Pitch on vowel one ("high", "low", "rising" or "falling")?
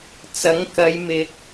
rising